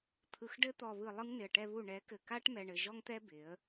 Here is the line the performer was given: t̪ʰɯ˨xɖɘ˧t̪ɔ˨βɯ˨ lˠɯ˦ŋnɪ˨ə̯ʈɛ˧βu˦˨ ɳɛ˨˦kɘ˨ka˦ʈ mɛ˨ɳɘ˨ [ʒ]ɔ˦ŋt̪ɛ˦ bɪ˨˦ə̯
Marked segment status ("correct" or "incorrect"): correct